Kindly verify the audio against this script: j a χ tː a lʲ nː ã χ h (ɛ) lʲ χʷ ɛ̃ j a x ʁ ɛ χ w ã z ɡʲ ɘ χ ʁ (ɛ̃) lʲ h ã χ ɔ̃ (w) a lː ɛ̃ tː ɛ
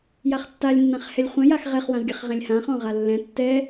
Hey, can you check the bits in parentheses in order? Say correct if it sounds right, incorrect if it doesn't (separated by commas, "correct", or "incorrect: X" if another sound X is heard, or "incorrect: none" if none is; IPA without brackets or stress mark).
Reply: correct, correct, incorrect: ʁ